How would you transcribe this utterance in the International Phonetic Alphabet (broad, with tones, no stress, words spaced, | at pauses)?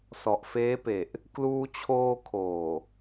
sɔ˨˩ʔfeː˦˥pe˨˩ʔ | kluː˧t͡ɕʰoː˧ kʰoː˨˩